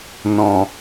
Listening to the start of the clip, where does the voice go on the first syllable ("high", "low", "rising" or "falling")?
low